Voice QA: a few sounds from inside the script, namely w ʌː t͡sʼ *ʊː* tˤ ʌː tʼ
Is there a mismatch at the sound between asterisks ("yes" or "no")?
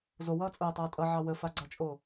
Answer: no